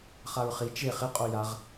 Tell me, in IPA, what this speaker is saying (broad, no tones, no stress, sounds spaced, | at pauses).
χ a ɹ χ i t͡ʃ e χ ɪ qʼ o j a ʁ